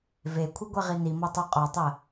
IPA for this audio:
v e kʷʰ ɨ ɡʷ ɛ ʁ i n i m ɔ tˤ o qʼ ɔ tˤ ɜ

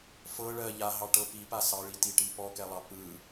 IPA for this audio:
f ɤ ɭ ɜ ʎ a ɦ ɑ ʈ ɤ p i p a s ɑ ɭ i t i ʈ i p ɔ k ɛ lˠ ɑ p ɯ

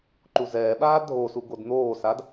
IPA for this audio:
ǃ u z ɛː ɓ aː dʱ o s u ɡ o d n̪ oː s a d

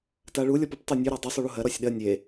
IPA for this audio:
t a ɭ u lʲ ɔ p u p tˤ o nʲ ʉ ɾ a dˤ u sˤ u ɭ u ɦ ɜ ɾ ɔ sʲ ɗ ɜ nʲ e

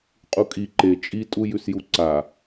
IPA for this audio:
qʼ u kʼ i ǃ e t͡ʃʼ i tʼ u j ʉ s j u ǀ a

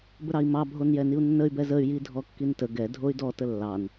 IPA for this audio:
b ə ɾ ɑ i̯ m ɑ bʱ o n j ɛ n i u̯ nː ə y̯ b ɛ z ə y̯ j i dʱ ɔ kː i n t ə ɡ ɛ dʱ o y̯ d ɔ t ə lː ɑ n

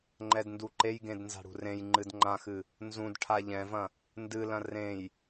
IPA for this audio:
ŋ͡ǃ ɛ d n d u ǃ e j ɡ ẽ d n z a̤ ɽ ṳ r ẽ j ŋ͡ǃ ɨ d ŋ͡ǃ ã x ɨ | n z ũ d ʈʰ a ʎ ɛ̃ v ɐ̃ | n d ɨ l ɐ̃ r ẽ j

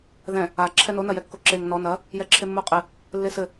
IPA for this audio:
ð ɛ̃ | a ǁʰ ɛ n o n ɐ j ɛ kː o ǁ e ŋ n ɔ n ɐ | j ɛ ǁʰ e mː o qʼ ɘ | lː e s ɘ

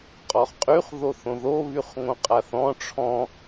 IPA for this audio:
qʼ ɔ χ qʼ y χ ð o θ õ ð o β y χ ŋ õ qʼ a θ ɔ̃ ʈ͡ʂʰ ɔ̃

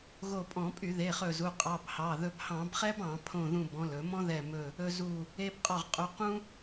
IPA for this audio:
ɣ o˧˩ pʼ ɔ̃˧˩˧ pʼ y˧˩˧ ð e˩˧˩ χ ɵ˧˩ z u˩˧˩ qʼ ɑ˩˧˩ b h ɑ˩˧˩ ð ɵ˧ b h ɑ̃˧˩˧ b χ ɛ˥ b ɑ̃˧˩˧ pʰ õ˧˩ ð ũ˧˩ b ɔ̃˩˧˩ l ɵ˧˩˧ m ɔ̃˥ ð ɛ˧˩ m ɵ˧˩ | ɵ˧ z u˧˩ | e˧ b qʼ ɔ˧˩ ʁ qʼ u˩˧˩ q ũ˥

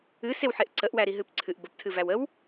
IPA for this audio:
ɨ s e w ħ e ʔ ǀ ə ʔ w æ ɾ i ɦ ɨ p ǀʰ ɨ ʔ b ə p tʰ ɨ v æ w ə w

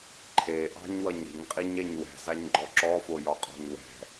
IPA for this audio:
ǃʰ e ʔ ɑ̤ ɲ w ʌ ɲ ɾ i̤ ɲ qʼ i ɲ ɛ ɲ w ɛ̤ z a ɲ ɡ͡ǃ ɔ ǁ ɔ f o j ɒ qʼ ɔ̤ ɲ w ɛ̤

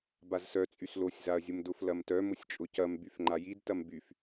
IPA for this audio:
b a z s œ t͡sʼ y s l o sʲ z a ɐ̯ zʲ ʊ m d ʊ f l ɐ m t œ m ʊ sʲ t͡ʃʼ ʊ c ɐ m b y f ŋ͡ǃ a j i d t ɐ m b y f

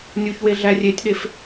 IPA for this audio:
nʲ u ç w e ɮ æ rʲ e tʲ ɗ e f

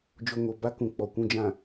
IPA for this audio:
d͡ʒ o˨ ŋ o˨ b a˦ k ũ˨ k͡p ɔ˨ kʷ ũ˨ d͡ʒ ã˨

